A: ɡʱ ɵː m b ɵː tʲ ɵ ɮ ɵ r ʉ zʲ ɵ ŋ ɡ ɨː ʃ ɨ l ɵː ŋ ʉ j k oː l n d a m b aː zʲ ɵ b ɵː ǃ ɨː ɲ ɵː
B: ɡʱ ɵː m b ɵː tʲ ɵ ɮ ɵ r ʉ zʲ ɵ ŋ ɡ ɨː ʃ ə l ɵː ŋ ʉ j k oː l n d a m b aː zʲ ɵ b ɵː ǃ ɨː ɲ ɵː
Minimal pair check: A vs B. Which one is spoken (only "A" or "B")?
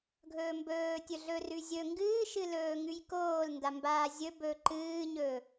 A